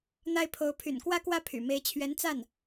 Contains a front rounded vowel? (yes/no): yes